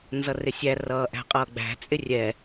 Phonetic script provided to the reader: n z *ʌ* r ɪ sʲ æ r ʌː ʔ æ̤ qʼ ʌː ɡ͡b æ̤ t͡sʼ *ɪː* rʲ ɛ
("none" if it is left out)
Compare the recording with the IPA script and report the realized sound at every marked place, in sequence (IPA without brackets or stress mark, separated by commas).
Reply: ʌ, ɪ